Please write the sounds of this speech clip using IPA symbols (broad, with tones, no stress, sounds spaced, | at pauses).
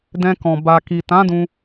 d ɛ̃˧ k ɔ̃˨ b a˨ k i˨ t ã˨˦ d ũ˧